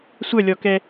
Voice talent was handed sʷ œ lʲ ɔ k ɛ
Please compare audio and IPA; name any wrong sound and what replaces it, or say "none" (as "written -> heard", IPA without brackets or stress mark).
none